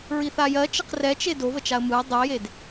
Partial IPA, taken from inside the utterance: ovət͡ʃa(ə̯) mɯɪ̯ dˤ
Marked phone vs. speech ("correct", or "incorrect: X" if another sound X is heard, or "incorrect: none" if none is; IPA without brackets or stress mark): correct